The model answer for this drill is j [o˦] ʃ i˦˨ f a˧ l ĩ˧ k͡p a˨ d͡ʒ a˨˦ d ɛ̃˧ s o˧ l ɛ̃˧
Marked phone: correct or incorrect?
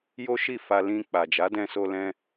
correct